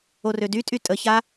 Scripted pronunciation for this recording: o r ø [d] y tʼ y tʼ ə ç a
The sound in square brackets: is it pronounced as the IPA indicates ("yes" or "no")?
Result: yes